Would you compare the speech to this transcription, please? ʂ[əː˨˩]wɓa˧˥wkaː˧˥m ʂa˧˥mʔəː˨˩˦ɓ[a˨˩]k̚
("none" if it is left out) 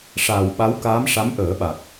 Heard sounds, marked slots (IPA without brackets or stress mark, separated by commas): aː˨˩, a˨˩